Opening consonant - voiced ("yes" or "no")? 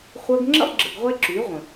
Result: no